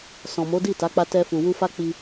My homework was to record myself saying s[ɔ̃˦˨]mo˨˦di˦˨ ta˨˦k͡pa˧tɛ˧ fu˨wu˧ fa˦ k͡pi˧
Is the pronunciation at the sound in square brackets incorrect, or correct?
incorrect